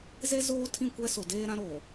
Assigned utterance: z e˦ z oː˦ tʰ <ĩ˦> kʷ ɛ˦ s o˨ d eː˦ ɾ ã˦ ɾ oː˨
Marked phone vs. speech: incorrect: ĩ˦˨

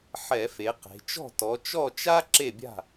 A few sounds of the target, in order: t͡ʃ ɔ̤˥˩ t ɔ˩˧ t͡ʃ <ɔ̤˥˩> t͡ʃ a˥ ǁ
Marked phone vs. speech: incorrect: ɔ˥˩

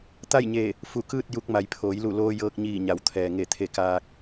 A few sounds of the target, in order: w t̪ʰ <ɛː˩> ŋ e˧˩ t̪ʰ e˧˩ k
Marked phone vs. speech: correct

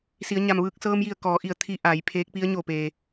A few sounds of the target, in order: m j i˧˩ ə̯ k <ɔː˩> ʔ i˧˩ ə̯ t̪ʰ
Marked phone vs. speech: incorrect: ɔː˩˧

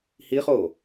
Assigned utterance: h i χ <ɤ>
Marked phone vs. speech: incorrect: o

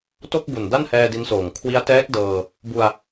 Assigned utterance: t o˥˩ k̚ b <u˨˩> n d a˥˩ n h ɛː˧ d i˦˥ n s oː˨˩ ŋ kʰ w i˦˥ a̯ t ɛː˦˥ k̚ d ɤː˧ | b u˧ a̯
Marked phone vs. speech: correct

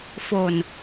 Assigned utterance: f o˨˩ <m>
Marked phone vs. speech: incorrect: n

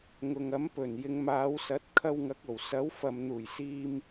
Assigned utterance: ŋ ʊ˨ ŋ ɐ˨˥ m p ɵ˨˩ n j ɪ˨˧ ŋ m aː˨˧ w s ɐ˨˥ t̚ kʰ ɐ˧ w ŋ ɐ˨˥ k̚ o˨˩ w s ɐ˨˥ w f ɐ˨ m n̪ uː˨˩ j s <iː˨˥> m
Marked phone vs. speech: incorrect: iː˧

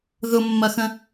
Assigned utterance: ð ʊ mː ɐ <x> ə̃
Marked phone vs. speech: correct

